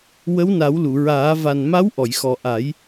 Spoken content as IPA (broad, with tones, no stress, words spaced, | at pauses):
wə˧˥wna˨˩˦wlu˨˩˨ɹaː˨˩˦ va˨˩n ma˧˥wʔɔ˨˩˨jxɔ˨˩ ʔa˨˩˦j